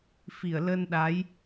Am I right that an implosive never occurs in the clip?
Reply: no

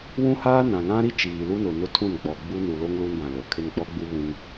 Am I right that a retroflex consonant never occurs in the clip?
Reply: yes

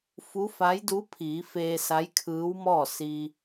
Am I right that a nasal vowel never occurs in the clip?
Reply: yes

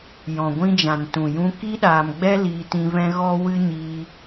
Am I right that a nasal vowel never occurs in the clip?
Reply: no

